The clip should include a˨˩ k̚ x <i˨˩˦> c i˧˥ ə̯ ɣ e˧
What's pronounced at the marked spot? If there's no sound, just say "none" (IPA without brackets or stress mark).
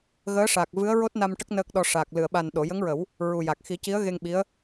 i˨˩˦